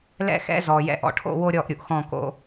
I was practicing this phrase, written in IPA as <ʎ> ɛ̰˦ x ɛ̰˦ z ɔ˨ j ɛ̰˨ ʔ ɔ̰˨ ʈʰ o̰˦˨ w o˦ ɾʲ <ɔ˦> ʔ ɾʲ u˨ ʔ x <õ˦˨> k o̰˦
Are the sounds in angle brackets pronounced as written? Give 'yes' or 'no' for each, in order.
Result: no, no, no

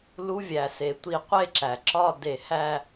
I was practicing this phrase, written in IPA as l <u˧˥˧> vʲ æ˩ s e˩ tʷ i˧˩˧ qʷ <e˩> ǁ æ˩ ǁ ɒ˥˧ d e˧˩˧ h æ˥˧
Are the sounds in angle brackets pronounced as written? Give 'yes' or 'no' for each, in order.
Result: yes, no

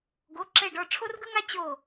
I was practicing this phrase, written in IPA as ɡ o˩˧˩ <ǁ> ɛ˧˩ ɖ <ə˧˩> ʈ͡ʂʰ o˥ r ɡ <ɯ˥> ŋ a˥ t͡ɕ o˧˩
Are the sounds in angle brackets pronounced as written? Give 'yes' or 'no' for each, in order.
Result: yes, no, yes

